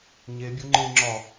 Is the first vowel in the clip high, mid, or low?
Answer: mid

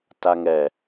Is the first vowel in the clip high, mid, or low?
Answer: low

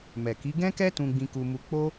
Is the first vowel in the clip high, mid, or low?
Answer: mid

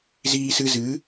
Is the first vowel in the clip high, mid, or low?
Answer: high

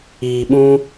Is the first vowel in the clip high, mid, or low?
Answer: high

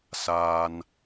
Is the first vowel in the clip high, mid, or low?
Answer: low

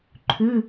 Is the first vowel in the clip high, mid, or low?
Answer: high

